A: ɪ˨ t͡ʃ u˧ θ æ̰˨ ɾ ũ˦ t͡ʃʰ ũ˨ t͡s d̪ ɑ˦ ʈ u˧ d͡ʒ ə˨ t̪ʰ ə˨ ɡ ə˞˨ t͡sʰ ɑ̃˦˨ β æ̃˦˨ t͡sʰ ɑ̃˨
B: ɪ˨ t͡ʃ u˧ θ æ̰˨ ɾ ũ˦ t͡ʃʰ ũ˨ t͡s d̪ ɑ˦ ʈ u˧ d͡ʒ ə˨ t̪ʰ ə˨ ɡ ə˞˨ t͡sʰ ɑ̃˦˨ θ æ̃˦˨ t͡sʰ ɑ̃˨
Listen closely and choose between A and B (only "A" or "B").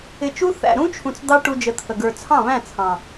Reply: A